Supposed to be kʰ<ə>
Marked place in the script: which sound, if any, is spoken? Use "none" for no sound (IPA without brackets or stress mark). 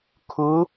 ʊ